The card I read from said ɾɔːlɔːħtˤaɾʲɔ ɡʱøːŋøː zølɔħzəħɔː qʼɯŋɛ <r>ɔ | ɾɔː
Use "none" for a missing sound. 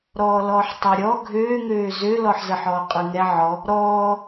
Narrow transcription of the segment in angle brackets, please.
ʕ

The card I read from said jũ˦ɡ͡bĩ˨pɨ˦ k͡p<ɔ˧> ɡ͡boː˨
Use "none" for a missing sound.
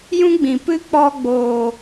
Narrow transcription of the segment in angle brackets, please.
ɔ˧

